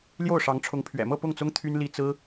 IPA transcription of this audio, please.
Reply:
l j o˥˩ ʊ̯ ʂ ɑ˧˥ ŋ ʈ͡ʂʰ ʊ˧˥ ŋ pʰ ɥ ɛ̰˨˩ m ɤ˥˧ p ʊ˥˩ ŋ t͡s ʊ˥ ŋ t̪ʰ y˥ n l i˥ t͡s ɹ̩˥

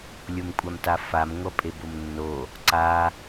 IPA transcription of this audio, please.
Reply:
lʲ o m kʷʼ a m t a f a m ŋʷ ʌ pʼ e b o m nː o | ǀ a

